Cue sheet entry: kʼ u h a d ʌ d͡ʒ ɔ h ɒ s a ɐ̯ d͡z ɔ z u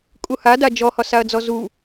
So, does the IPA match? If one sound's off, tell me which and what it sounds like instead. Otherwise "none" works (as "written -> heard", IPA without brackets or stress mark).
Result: ʌ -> a